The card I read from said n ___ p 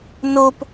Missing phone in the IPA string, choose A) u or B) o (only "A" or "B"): B